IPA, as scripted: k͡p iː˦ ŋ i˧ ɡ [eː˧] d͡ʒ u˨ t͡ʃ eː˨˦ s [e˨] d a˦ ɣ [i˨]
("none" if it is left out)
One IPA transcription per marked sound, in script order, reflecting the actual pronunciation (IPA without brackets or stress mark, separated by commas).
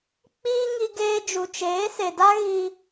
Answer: eː˧, e˨, i˧